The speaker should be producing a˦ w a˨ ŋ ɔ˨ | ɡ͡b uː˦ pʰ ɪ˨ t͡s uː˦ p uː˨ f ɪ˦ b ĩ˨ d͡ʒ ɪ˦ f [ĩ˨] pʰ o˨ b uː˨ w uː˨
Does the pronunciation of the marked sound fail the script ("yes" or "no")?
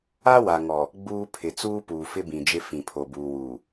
no